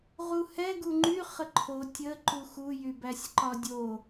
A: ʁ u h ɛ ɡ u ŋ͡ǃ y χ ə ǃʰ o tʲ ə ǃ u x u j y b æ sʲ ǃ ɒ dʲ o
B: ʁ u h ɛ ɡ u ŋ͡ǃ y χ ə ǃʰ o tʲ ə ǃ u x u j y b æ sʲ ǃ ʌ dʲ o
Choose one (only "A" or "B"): A